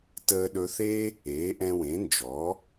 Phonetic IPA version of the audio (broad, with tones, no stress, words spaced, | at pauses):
təː˧ɗɵ˧θe˥ | eː˩˥ʔɛ̃˧wẽ˩˥nd͡ʒɔ˩˥